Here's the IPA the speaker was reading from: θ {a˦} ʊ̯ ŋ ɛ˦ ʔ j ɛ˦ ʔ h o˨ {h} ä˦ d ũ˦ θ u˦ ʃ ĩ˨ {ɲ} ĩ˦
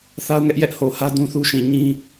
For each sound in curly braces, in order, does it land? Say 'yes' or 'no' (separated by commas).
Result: yes, yes, yes